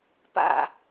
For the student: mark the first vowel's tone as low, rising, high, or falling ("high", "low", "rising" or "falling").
low